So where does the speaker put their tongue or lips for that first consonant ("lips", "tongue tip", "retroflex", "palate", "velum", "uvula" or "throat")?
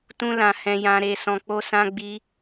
tongue tip